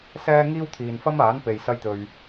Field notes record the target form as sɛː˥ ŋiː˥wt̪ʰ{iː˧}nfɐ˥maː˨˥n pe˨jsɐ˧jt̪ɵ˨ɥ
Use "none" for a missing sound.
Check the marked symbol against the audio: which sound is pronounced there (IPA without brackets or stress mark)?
iː˨